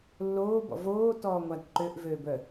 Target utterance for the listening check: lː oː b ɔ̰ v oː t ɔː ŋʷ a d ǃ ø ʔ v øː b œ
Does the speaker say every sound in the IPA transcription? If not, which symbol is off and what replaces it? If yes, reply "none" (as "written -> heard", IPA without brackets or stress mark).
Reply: none